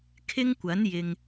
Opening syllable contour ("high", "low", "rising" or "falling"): high